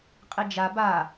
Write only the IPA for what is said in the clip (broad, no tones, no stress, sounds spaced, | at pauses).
qʼ i d͡ʒ a b a